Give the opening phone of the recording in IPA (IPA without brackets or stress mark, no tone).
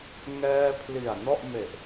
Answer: ŋ